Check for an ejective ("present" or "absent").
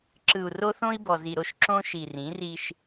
absent